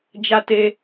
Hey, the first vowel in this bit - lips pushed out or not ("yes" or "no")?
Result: no